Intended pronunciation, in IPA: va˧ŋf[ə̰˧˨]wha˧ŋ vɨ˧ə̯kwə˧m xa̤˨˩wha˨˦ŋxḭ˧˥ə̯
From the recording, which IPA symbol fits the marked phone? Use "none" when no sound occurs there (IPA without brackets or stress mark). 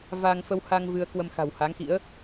ə˧